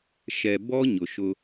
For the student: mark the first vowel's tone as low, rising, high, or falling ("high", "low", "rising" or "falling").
low